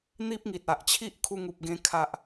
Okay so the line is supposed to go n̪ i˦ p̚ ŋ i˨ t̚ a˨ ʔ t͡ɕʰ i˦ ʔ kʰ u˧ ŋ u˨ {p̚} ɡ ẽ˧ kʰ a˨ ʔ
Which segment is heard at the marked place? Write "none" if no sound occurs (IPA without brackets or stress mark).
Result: p̚